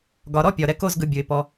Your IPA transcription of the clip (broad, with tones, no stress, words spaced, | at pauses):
ɡɒ˨ɾɔ˦pʲɒ˨ ɾɛ˦ko˦z ɡɯ˨ bʲɯ˨ɪ̯ pɔ˦